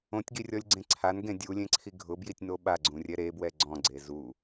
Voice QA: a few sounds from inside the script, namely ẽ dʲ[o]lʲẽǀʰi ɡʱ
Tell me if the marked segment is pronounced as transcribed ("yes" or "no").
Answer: no